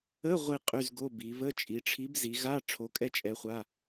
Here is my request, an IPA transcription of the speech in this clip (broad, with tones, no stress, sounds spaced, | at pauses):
ə˧˥˧ ʁʷ i˥˧ qʼ y˧˥˧ z ɡ o˧˥˧ b i˩˧ β ə˧˥˧ t͡ʃʼ i˩˧ ʈ͡ʂʰ i˨˥ b z i˩˧ ɣ a˧˥˧ ʈ͡ʂʰ o˨˥ kʼ ɛ˥˧ t͡ʃʼ ɛ˨˥ χʷ a˧˥˧